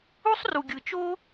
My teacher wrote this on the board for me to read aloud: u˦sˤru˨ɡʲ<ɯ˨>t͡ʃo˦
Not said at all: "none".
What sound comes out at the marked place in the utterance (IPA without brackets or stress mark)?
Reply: ɯ˨